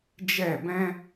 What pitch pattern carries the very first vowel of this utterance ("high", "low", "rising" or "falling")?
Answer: falling